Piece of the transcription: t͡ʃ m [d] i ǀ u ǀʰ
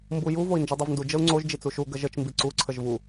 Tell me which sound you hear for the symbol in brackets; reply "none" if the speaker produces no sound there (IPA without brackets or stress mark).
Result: b